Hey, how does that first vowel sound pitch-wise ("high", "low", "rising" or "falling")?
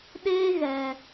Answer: high